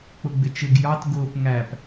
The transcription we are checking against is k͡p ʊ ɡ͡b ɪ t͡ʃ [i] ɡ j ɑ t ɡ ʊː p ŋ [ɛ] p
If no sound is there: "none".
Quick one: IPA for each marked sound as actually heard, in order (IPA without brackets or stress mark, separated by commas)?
ɪ, æ